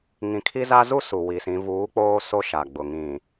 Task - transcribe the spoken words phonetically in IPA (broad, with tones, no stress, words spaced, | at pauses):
ŋĩ˨kʰi˦za˦ zu˦ su˨wi˨sĩ˨˦ vuː˨˦k͡poː˦ so˦ʃa˨ɡ͡bʊ˨ ŋĩ˨